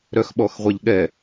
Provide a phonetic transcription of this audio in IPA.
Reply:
ɾœxɓɔxʁʷɛʎɠɛ

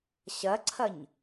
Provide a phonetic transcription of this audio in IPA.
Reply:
ɕɐǀʰɐɲ

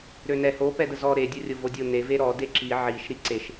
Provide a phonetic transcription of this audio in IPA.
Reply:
ɾønɛ ho pɛdəzɔ ɾe dʲɔrʲovodʲo ne veɾɔ deǁi ʕiʃ ɾiǀeʃ

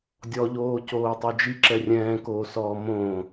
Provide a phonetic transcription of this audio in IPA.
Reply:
dʲɔʎoː coːtˤod͡ʒi ǁɛrʲɛ̃ːkoːsɔː mõ

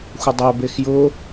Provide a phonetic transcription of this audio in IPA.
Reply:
xʷədˤɛbex jʊ

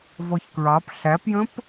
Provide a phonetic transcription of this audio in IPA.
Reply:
vɔçkɹɑp ɬæpjə̃p

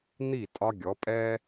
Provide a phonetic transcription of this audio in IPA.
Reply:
n̪i˦˨tʼɒ˦ɡʲɔ˨˦ pʼɛ˦

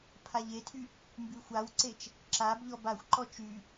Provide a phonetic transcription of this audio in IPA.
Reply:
pʰaʎetʰy | mbyxʷawǀet͡ʃ | ǁab ʎɔbaxʷǃɔ t͡ʃy

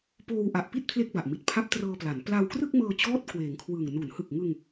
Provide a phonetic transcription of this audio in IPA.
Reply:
poː˧wʔa˨˩ʔpi˥˩t̚ pʰle˥˩k̚ba˨˩ʔmi˨˩t̚ pʰa˦˥p̚trɤː˧pla˩˦n pla˧wkrɯ˥˩k̚mɤː˧t͡ɕɔː˦˥t̚ kweː˩˦ŋkʰwɯː˨˩ŋ nu˩˦nhɯ˨˩k̚ŋɯ˧ŋ

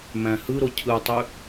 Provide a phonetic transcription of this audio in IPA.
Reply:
mæ̃hɯɾo cʰɯtˤy

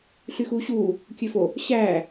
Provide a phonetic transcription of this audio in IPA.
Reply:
ɬyxuːɕuː | kʲøfo | ɕæː

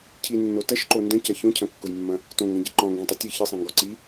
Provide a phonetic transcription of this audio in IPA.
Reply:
cʰinːo tɐʃǃo ndɐ̃cɐ çõcʰɐ̃kːʊjmːɐ̃ | tõŋɡɐ̃ɟi ǃɔ̃ŋɡĩtˤo tʲɨ çɨsˤĩŋɡɔ ǀi

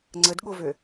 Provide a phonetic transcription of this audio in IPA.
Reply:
ŋ͡ǀədɠovø

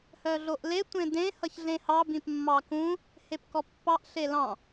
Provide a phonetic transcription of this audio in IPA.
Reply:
hœɮoʔle tʷẽdẽ hʌçɮẽhɑ bĩpmːɑkũ | hepkɔpːɑʔ ɬelɑ̃

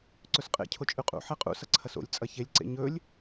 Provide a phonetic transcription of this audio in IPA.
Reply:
ǀɵsqʼḛ cʰot͡ʃʼʉqʼṵ ħeqʼṵ sɐǀʰɐso̰lʲ t͡sʼɐçelʲ ǀḛɲɵlʲ

